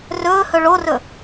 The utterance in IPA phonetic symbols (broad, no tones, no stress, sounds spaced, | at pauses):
r ɵː h ɵ ɭ o r ɵ